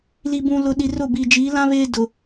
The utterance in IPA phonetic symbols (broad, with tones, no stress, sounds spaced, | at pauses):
l i˨ b ũ˨ l ʊ˨ ɗ i˨ r ʊ˦˨ b iː˨ d͡ʒ iː˨˦ l ã˦ β eː˦ d ʊ˨